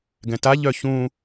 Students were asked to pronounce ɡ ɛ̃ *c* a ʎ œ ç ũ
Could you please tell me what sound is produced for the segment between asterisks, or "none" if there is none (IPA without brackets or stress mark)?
t